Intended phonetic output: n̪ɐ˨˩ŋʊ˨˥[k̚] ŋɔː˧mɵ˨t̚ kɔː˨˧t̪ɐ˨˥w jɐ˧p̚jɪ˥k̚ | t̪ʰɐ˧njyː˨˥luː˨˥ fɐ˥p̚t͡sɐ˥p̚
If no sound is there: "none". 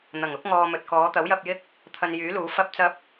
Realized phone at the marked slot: k̚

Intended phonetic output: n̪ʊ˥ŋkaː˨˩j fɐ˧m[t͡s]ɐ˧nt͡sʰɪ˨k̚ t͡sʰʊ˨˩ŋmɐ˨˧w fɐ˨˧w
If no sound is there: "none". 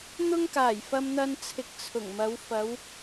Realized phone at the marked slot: n̪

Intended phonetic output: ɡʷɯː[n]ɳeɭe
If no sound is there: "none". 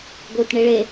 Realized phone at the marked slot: t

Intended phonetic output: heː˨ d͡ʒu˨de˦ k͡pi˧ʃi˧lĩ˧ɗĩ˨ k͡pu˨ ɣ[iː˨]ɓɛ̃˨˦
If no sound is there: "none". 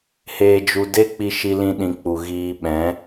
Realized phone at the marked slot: iː˧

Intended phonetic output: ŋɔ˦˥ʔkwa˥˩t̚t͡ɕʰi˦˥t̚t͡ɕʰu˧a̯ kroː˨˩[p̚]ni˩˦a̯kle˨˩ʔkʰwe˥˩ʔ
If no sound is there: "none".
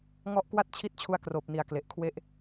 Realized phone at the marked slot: p̚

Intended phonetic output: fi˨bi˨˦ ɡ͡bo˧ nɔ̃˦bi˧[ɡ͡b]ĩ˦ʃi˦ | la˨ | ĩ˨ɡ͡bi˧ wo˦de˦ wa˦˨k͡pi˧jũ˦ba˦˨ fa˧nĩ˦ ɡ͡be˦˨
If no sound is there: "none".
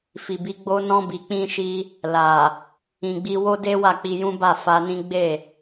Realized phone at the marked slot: k͡p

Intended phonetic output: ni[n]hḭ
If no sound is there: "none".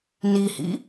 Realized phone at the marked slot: none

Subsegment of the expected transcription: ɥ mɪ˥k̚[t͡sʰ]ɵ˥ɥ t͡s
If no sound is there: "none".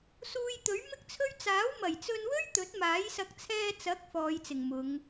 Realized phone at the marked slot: t͡sʰ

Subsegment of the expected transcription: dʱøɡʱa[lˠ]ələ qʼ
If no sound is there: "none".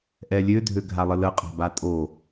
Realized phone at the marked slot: lˠ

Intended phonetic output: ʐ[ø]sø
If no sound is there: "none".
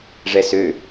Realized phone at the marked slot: ɛ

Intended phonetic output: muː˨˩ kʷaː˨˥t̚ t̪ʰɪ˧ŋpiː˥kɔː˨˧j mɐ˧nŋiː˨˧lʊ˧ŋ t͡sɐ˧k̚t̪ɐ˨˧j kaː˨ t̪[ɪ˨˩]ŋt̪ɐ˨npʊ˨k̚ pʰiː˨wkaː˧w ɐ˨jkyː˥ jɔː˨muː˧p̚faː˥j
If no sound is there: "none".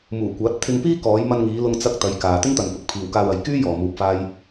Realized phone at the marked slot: ɪ˥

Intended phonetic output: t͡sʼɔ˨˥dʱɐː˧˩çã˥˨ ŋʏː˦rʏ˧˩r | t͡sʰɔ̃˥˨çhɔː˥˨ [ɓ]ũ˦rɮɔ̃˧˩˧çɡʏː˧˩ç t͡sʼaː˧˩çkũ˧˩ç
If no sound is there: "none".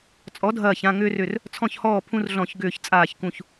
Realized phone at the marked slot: pʰ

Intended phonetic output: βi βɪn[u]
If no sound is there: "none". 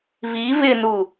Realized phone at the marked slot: u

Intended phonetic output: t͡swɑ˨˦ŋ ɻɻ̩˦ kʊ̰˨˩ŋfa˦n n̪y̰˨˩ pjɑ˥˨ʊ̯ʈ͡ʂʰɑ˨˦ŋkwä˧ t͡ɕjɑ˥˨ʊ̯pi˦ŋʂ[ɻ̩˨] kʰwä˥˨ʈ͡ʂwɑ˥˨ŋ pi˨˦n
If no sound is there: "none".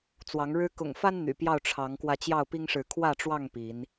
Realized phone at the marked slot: ɻ̩˨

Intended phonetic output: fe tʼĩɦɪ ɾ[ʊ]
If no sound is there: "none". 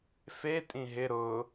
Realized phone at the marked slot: ʊ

